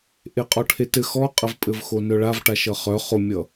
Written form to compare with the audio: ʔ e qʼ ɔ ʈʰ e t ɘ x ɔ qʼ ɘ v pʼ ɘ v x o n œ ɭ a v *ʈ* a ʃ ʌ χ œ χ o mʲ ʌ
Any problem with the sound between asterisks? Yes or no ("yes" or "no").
no